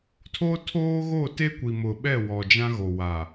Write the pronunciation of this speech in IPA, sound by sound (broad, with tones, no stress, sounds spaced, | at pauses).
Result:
tʰ o˦ tʰ oː˦ ɣ o˦˨ t e˦ kʷ i˨ m ʊ˨ ɓ ɛ˦˨ w ɔ˨ d͡ʒ ã˦ ɣ o˨ w a˨